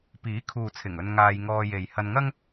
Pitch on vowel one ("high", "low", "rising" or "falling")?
rising